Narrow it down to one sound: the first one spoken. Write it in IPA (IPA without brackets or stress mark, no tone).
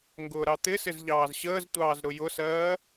ŋ